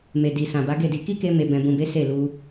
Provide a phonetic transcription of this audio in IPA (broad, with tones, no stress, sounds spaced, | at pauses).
m e˨ d i˨ s ã˨ b a˨˦ ɡ e˦˨ d i˧ k i˦ k e˧ m e˨ b ɛ̃˨ b ũ˨ b e˨˦ s e˦˨ l u˧